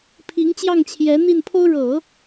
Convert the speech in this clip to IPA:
pʰi˧˥ŋt͡ɕjɑ˥˩ŋt͡ɕʰjɛ˧˥ n̪i˥˩npʰo˥ʊ̯ ɻɤ˨˩˦

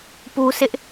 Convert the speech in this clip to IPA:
pu˦sɪ˦ʔ

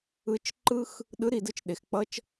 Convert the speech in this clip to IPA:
ɯ˨˦t͡ʃ ǃɯ˦x | ɗɯ˨˦ɾi˨dɯ˧t͡ʃ ɗe˨xk͡pʌ˦t͡ʃ

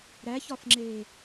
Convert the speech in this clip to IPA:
ɾæçɒfŋ͡ǁeː

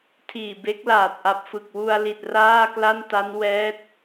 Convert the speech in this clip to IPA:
tʰiː˨˩be˦˥k̚laː˨˩t̚ ʔa˨˩p̚fɯ˨˩k̚wu˧a̯li˨˩t̚ raː˥˩kla˥˩nta˦˥n wɛː˦˥t̚

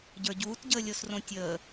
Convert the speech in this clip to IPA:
ɟə˞ɟuːtɟəːlʲos rõtʲəː

